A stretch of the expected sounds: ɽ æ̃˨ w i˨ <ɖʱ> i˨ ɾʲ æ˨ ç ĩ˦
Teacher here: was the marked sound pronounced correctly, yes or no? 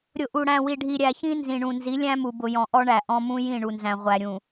yes